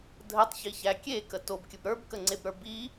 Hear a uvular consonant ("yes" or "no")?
no